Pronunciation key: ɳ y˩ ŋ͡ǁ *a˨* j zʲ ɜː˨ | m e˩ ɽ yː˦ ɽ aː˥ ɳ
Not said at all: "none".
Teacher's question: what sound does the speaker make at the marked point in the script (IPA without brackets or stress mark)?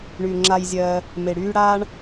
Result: a˨